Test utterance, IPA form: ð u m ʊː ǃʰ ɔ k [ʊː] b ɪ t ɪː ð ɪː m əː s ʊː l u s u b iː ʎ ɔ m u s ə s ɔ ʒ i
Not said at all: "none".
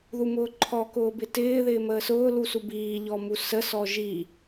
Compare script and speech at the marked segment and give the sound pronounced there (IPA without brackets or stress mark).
ʊː